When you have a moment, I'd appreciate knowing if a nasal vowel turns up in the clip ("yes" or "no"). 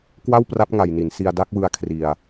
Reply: no